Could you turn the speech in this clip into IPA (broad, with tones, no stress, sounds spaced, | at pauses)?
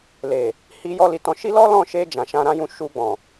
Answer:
l e˨ | h i˧ j ɔ˦ l i˧ t ɔ̃˧ ʃ i˦ l ɔ˦ l ɔ̃˦˨ ʃ e˧ d͡ʒ ã˨ ʃ ã˧ ɾ ã˦ j ũ˧ ʃ u˧ ɡ͡b ɔ̃˨